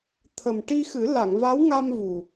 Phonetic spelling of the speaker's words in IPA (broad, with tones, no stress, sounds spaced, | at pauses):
t̪ʰ ə˨˩ m ʈ i˧ x ɨ˨˩˦ l a˨˩˨ ŋ v a˧˥ w ŋ a˧ m v u˨˩